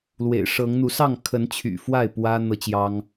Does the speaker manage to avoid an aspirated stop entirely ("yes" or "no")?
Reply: no